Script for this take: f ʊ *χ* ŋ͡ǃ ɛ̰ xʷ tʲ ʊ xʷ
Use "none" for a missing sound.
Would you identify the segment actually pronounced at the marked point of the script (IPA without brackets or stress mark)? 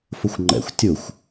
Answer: xʷ